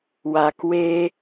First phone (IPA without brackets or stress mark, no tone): w